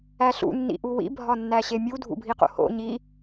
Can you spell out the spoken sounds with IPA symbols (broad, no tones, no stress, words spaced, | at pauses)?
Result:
æɬṵ nːḭʔuwḭ bʱɒnːæɕemʲu dʱṵbʱiqo̰ho̰ ɲi